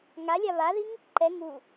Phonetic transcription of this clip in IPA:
ŋ a lʲ a β a ð i ŋ | ǃ ɛ ŋ u

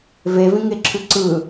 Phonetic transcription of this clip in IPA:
v e v ĩ ŋ e ǁʰ ʉ ǀ ɯ

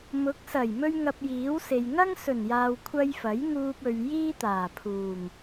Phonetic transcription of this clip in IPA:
m ʊ˨˥ k̚ s ɐ˨˩ j m ɵ˥ ɥ ŋ ɐ˧ p̚ j iː˨˥ w s e˨ j ŋ ɐ˥ ŋ s ɵ˨˩ n j aː˨ w kʷʰ ɐ˧ j f ɐ˨˥ j ŋ uː˧ p̚ ɵ˨ ɥ j iː˥ t̪ aː˨˩ pʰ uː˨˩ ŋ

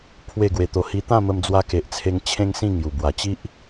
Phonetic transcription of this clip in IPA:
pʰ w e˥˧ ɡ w e˧ t̪ o˧ h i˧ t̪ ã˥˧ m ə˧ m d͡z w a˧ k e˨ ʔ t͡sʰ e˧ ŋ t͡ɕʰ ẽ˦ ŋ s ĩ˥˧ ŋ j u˨˩ b w a˨˩ t͡ɕ i˦ ʔ

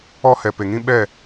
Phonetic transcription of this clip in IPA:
ɔ˦ h ɛ˨ p e˨ ŋ ĩ˦ ɓ ɛ˦˨

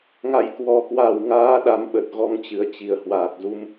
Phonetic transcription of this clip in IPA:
ŋ a̰˧˨ j k w ɔ˨˩ k w a˧˩ w ŋ aː˨˦ ɗ a˨˦ m ɓ ə˨˩ t̚ ɣ ɔ˨˦ ŋ t͡ɕ ɨ˨˩ ə̯ t͡ɕ i˧˩ ə̯ h w aː˨˩ k̚ z u˧ m

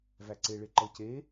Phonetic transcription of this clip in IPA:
v æ ǀ e ɭ e ǃ ɤ c e

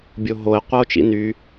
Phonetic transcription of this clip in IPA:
bʲ o ɦ o e̯ qʷ a o̯ t͡ʃ ḭ n y

